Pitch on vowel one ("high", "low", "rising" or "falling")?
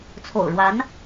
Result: low